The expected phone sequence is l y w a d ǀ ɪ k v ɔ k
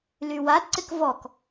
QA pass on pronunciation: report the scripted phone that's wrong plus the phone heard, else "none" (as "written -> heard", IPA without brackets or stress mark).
none